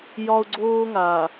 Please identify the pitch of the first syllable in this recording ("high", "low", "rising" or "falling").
high